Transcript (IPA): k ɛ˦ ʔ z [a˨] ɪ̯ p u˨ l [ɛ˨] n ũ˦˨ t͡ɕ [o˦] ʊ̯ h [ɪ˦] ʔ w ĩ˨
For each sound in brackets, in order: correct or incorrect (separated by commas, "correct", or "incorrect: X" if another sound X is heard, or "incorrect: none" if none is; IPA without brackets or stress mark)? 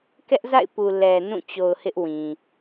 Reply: incorrect: a̰˦˨, correct, incorrect: o˨, correct